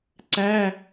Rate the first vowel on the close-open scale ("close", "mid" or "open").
open